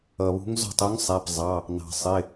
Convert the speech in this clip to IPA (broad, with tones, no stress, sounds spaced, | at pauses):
ʌ˩ β ṳ˧˥ ŋ z ɔ̤˥˩ tˤ u˧˥ ŋ sˤ æ˩˧˩ p zˤ ɑ˩˧˩ | n ɑ̤˩ sˤ ɪ˩˧˩